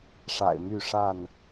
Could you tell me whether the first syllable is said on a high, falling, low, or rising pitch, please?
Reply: low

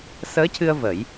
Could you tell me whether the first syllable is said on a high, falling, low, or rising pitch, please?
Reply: rising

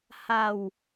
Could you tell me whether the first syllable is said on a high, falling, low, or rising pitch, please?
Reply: low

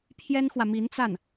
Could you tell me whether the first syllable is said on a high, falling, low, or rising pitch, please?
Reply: high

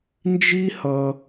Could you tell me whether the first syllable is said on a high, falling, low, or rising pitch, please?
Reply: high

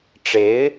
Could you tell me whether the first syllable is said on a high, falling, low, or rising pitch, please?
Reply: rising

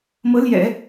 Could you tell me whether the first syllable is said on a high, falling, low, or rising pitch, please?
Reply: rising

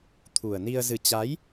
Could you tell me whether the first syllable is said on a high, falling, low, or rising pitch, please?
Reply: low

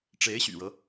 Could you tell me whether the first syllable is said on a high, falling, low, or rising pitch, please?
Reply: rising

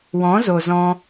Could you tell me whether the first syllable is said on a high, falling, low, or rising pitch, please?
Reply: rising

